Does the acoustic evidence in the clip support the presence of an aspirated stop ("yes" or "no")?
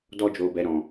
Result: no